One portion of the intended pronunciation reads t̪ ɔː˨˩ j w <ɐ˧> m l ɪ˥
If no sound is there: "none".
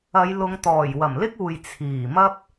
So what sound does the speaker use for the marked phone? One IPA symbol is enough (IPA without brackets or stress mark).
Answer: ɐ˨˩